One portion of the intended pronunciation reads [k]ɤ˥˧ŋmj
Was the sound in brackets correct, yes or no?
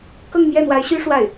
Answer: yes